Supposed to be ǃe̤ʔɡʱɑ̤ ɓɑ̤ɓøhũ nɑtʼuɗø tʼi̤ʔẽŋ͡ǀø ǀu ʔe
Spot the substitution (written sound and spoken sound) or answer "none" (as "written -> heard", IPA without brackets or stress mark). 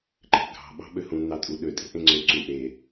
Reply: none